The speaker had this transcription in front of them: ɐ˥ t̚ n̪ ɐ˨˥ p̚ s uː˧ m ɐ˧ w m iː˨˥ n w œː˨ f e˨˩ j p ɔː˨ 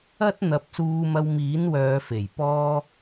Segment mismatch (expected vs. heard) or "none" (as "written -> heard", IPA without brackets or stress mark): ɔː˨ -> ɔː˥